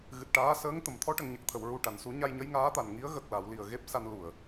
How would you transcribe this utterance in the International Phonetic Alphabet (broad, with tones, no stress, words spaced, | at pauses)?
ɣɨ˨˩t̚ʈaː˧˥səː˧˥ŋ t̪ə˨˩˨mt̪ʰɔ˧˥ ʈə˨˩˨ŋɲə˨˩k̚t̪ʰə˨˩˨w ɹu˨˩ʈa˨˩˨nsu˨˩˦ ɲa˧jɲə˧˥jŋaː˧˥t̪a˨˩n ŋi˧˥ə̯ ɣə˨˩k̚la˨˩˨wli˨˩ə̯ ɣe˦˥p̚sa˧n lu˨˩˨ə̯